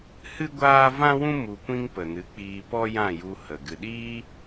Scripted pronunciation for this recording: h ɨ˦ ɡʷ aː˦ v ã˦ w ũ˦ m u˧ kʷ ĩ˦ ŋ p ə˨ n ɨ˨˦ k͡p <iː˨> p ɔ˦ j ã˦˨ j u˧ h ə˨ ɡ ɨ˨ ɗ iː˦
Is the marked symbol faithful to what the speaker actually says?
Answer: no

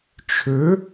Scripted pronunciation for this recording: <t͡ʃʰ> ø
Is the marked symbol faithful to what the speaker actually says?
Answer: yes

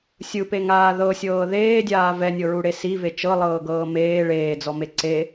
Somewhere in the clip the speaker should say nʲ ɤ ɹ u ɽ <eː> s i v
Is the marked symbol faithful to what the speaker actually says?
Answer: no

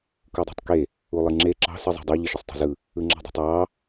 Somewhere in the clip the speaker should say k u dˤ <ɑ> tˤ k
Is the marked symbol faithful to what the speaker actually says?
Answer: no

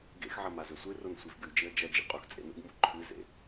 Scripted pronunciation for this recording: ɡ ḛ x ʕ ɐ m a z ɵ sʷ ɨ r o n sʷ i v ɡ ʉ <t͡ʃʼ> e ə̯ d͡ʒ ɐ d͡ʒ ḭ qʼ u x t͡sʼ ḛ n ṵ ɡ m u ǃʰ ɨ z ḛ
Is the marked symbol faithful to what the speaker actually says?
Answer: no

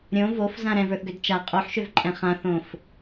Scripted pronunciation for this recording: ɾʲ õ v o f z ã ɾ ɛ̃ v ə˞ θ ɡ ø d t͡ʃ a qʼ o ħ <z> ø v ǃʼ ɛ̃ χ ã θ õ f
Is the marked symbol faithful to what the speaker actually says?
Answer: no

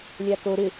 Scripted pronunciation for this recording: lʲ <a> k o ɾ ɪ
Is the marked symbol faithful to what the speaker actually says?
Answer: yes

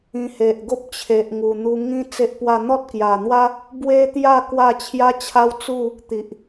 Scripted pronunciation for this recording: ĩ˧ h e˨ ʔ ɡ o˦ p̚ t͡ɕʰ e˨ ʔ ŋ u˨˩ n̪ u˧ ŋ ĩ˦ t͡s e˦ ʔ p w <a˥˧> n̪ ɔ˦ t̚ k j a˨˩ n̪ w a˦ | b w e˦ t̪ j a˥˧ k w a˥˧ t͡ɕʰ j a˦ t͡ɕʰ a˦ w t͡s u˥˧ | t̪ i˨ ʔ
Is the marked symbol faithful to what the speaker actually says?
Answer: yes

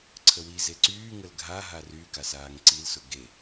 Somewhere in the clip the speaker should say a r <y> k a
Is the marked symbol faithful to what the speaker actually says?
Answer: yes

